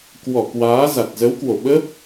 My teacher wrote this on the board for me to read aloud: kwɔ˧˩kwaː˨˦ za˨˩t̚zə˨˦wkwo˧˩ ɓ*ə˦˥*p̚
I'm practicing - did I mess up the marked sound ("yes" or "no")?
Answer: no